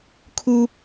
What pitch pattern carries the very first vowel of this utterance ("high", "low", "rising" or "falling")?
high